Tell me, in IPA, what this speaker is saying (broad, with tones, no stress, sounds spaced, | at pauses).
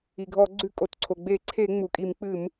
i˩ ɡʱ ɔ˧˩˧ ɡ͡ǀ ʉ˧˩˧ kʼ o˩ t ǀʰ o˩ ɡ͡b e˧˩˧ ǀʰ e˧˩˧ ŋ͡m u˩ kʼ i˧˩˧ m k͡p ɨ˧˩˧ m